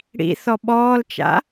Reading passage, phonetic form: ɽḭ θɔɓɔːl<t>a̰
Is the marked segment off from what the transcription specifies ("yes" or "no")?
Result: yes